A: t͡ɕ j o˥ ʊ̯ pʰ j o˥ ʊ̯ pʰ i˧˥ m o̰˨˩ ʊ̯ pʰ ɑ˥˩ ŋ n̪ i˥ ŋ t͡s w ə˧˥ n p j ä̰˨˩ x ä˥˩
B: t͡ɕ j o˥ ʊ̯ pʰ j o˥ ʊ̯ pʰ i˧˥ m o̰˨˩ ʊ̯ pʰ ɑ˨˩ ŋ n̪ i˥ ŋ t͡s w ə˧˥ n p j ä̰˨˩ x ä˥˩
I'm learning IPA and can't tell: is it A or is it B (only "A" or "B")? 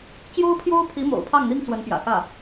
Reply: A